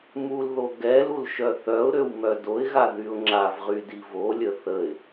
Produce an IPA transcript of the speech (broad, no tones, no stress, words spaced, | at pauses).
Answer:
mulðo ɡɛlul ʃœθœʊ̯ɾøw mœdoɪ̯ɣa ðyʊ̯ŋ͡ǁavʁy divolʲə θəɪ̯